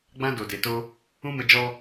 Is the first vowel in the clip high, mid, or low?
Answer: low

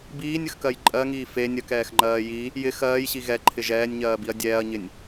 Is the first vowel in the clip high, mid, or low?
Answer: high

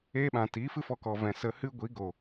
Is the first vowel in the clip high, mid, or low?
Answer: mid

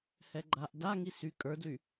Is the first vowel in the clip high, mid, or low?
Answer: mid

